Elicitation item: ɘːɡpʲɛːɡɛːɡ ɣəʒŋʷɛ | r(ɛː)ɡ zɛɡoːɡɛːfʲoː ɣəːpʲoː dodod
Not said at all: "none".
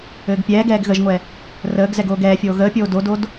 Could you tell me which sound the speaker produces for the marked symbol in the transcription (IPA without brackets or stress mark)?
əː